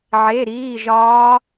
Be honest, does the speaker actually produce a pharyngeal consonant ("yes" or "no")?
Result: yes